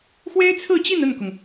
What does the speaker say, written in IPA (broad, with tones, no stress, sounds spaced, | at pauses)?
x w e˥ ɪ̯ t͡sʰ ɹ̩˥˧ t͡ɕ i˥˧ n ə˥˩ n k ʊ˩ ŋ